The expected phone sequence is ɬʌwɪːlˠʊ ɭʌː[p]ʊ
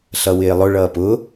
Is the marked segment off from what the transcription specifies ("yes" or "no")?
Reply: no